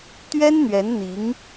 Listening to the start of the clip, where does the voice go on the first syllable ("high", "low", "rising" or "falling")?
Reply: high